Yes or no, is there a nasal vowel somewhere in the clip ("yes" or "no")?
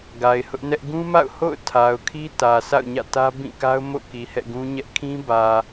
yes